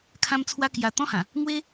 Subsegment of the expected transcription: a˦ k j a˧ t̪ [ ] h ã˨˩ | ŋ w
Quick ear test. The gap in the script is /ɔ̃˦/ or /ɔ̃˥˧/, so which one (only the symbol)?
ɔ̃˦